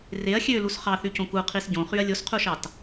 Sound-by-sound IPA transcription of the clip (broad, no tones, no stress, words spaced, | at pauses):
reɐ̯ xʲølus χɑθycõ kuqʰis ɟõχyɐ̯ lʲosqʰuʃɑt